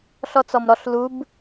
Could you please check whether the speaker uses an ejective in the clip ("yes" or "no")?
no